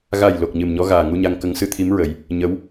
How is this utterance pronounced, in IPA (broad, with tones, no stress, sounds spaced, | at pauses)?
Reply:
ɣ a˨˩ j l o˨˩ k̚ ɲ ɨ˨˩ m ɲ ɔ˧˥ ɣ aː˨˩ ŋ u˧ ɲ a˧ ŋ k ə˧˥ ŋ s ɨ˧ t̪ʰ i˧˥ m ɹ ə˨˩˦ j | ɲ ə˧˥ w